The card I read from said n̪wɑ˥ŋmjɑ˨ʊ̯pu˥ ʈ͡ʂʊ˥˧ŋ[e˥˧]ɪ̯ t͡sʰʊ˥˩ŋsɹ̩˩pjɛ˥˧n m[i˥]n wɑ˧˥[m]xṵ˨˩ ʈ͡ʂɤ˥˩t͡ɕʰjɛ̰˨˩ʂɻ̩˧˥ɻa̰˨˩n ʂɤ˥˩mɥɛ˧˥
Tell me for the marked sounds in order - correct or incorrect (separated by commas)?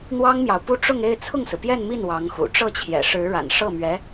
correct, incorrect, incorrect